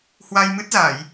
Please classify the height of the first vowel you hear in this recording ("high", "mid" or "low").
low